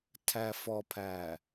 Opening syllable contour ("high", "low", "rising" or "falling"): low